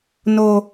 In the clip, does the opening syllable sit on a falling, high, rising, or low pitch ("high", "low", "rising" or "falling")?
high